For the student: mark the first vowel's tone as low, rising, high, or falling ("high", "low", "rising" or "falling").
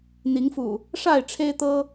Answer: rising